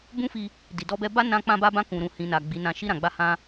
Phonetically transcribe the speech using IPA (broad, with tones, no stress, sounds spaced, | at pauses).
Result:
b ũ˦ f i˧ | d i˨ d ɔ˧ b ɛ˧ b a˦ n ã˧ k͡p ã˧ b a˧ b ã˧ k ũ˨ ɾ ũ˨ h ĩ˨ n a˨ ɡ͡b i˨˦ n ã˧ ʃ i˧ ɾ ã˨ ɡ͡b a˧ h ã˧